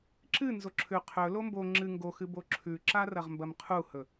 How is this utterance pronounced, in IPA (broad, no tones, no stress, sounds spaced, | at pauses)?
ǁ ɨ n z o ǁʰ ʉ qʰ ɵ l o m b o ŋ͡ǁ ɨ ŋ ɡ o x ɨ b o ǁʰ ʉ ǁ a r ɐ ʁ m b ɐ m qʰ u h ɵ